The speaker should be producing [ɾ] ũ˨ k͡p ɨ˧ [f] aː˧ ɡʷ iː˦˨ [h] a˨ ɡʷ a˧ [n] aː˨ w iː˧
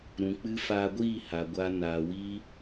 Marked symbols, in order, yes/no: yes, yes, yes, yes

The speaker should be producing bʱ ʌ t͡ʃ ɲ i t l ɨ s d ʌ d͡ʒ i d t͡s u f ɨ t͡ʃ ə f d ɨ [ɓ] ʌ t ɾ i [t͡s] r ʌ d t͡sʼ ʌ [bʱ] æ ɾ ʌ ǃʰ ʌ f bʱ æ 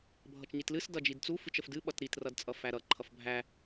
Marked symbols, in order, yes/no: yes, no, no

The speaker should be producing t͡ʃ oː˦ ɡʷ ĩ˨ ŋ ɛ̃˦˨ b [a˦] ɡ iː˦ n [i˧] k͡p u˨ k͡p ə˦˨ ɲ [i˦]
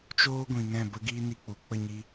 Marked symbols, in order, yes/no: no, yes, no

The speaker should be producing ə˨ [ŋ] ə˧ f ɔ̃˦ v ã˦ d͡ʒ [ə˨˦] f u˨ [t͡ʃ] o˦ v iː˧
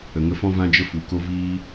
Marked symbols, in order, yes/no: yes, no, no

